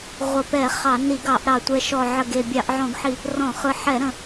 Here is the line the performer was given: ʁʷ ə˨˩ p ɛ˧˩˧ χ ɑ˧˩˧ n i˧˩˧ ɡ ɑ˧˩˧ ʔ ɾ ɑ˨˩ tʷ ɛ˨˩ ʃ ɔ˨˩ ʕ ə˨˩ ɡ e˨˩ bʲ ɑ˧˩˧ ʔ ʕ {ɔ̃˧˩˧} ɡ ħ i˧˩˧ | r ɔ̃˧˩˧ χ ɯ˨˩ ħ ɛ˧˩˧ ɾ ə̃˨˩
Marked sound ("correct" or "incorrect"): correct